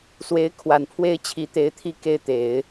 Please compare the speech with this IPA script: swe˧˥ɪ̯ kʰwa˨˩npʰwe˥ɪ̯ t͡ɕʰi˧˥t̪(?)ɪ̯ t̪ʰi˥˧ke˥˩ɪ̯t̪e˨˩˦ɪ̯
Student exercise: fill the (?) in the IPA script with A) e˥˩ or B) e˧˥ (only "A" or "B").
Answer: B